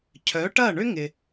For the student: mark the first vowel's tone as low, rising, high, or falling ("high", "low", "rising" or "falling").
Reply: rising